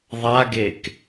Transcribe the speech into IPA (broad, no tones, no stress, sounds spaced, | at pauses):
ðˤ a ɡ e k